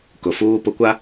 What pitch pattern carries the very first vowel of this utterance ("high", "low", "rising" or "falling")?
low